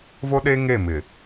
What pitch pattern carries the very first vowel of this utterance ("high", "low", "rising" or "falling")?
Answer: high